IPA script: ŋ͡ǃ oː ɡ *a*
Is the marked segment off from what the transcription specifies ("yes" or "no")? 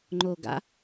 yes